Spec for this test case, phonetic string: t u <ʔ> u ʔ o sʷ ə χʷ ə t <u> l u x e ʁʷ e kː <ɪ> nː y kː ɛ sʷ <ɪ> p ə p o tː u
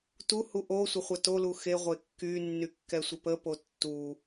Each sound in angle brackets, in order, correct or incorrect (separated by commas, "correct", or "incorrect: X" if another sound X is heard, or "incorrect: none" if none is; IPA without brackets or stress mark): incorrect: h, incorrect: o, incorrect: y, correct